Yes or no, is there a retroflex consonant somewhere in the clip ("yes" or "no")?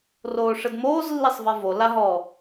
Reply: yes